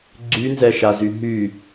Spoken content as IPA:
ɡ͡ǀ y n z ɛ ʃ a z y ɦ y

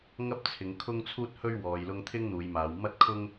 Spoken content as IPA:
ŋ ɐ˥ p̚ t͡sʰ ɪ˨˧ ŋ kʰ ʊ˥ ŋ t͡sʰ uː˥ t̚ h ɵ˥ ɥ w ɔː˨ j l ʊ˧ ŋ t̪ʰ ɪ˥ ŋ n̪ uː˨˧ j m aː˨˧ w m ɐ˥ t̚ kʰ ʊ˥ ŋ

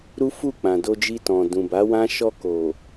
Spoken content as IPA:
ɾ u˦ f u˦˨ k͡p ã˨ d o˧ d͡ʒ i˧ t ɔ̃˨ d ũ˨ b a˨˦ w ã˦ ʃ ɔ˧ k o˨

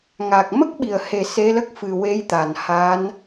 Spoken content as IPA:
ŋ a˨˩ k̚ m ə˦˥ k̚ ɓ i˨˩ ə̯ h e˨˩ s e˧˥ l ə˦˥ k̚ f ɨ˨˩ w e˧˥ j t̪ a˨˩ n h a˧˥ n

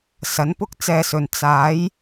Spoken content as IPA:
s ɐ˨˥ n p ʊ˥ k̚ t͡s ɛː˧ s ɵ˨ n t͡s aː˨˥ j

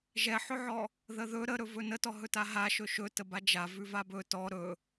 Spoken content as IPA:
ʒ ɛ ħ ɵ ʕ ɔ | ð ə ð ɵ ɾ ə ɾ ɵ v ɵ n ə t ɔ ɦ ɵ t a ɦ a ʃ ɵ ʃ ɵ t ə b a d͡ʒ a v ʉ v a b ɵ t ɔ ɾ ɵ

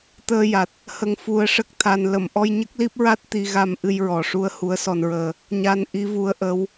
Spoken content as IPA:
t̪ əː˧ j a˨˩ t̚ | h ə˧ ŋ f u˧ ə̯ ʂ ə˦˥ k̚ t̪ʰ a˧ n l ə˨˩˨ m ʔ ɔ˧ j ɲ ə˦˥ k̚ l i˦˥ p̚ ɹ a˦˥ t̚ t̪ i˧ ɣ a˧ m ʔ ɨ˧ j ɹ ɔ˨˩ ʂ u˧ ə̯ h u˧˥ ə̯ s ɔ˧ n ɹ əː˧ | ɲ a˧ n ʔ i˧˥ v u˧˥ ə̯ ʔ ə˧˥ w

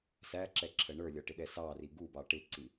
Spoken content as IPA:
s æ ǁ ɛ ǁʰ ə ɳ ə˞ lʲ ɔ ʈ ɪ ɗ ɛ s ɑ r i ɡ u b ɑ ʈ ɪ ǀ i

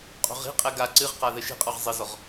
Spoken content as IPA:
qʼ o̤ ʁ i̤ qʼ ɛ ɡ a ǀ ɨ ʁ q a ð ɘ ʃ i̤ qʼ ɔ ʁ zˤ ɘ z ɔ ʁ

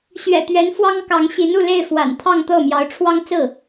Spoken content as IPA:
ɕ ɥ ɛ̰˨˩ t̪ ɥ ɛ˧˥ n f w ɑ˥ ŋ k ɑ˧˥ ŋ ɕ i˧˥ n u˥˧ l e˥˩ ɪ̯ f w a̰˨˩ n t̪ʰ ɑ˥˧ ŋ t̪ ɤ˥˩ m j ɑ˧˥ ʊ̯ ʈ͡ʂʰ w ɑ˥ ŋ t͡s ɹ̩˥˩

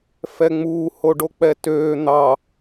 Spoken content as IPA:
f ɛ ŋ͡m uː h o ɖ o k͡p ɛ t øː n̪ ɑ

